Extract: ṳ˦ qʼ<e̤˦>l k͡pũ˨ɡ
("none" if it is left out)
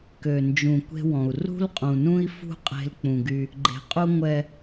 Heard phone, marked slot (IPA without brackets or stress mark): e̤˦